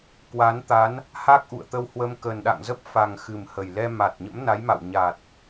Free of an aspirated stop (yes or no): yes